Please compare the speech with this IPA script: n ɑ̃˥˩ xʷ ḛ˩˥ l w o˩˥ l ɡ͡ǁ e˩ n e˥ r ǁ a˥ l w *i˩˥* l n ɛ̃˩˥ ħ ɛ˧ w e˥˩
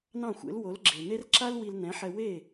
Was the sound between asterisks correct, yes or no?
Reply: no